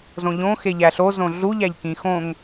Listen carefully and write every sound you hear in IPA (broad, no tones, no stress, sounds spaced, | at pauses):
z õ ʎ õ x e ʎ æ ɬ o z õ ɮ u ʎ æ ʎ k ĩ x õ ŋ